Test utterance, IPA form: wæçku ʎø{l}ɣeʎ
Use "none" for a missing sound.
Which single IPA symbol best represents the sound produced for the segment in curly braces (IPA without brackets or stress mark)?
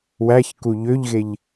ʎ